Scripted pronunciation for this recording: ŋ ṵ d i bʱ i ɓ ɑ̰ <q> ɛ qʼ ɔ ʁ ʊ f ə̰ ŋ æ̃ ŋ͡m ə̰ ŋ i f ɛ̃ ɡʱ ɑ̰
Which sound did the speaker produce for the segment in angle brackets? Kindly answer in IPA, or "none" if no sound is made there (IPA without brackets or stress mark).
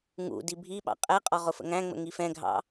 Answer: qʼ